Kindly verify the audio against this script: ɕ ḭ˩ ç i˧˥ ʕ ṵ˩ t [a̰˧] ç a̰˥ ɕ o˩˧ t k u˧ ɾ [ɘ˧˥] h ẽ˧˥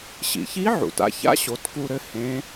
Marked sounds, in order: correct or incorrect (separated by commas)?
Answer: correct, correct